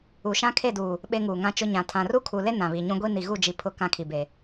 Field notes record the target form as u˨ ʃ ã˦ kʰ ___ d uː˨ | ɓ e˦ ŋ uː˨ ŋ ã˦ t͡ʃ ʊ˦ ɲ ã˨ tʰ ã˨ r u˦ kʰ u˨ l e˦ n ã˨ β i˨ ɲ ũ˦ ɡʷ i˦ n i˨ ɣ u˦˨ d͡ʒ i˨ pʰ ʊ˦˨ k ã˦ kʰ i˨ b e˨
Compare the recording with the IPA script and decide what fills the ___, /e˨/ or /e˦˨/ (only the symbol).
e˦˨